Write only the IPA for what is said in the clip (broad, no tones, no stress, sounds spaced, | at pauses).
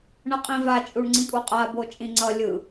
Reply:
ɳ ʌ qʼ ĩ v a t͡ʃʼ u ɳ ŋ͡ǀ ĩ kʼ u qʼ a b o t͡ʃʼ ĩ ŋ͡ǀ ʌ lʲ ɯ